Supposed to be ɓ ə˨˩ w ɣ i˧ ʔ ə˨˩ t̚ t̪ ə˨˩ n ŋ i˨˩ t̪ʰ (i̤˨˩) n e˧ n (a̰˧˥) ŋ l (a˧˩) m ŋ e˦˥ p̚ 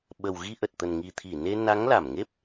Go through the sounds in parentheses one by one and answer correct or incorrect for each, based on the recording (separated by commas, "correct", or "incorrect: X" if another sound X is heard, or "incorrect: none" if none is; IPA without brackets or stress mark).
incorrect: i˧˩, incorrect: a˨˦, correct